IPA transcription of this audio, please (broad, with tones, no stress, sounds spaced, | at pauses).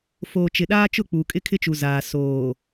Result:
f oː˨ t͡ʃ ɪ˨ ɗ aː˦ t͡ʃ ʊ˦˨ k͡p uː˨ kʼ ɪ˦ kʰ ɪ˦ t͡ʃ u˨ z aː˨ s oː˨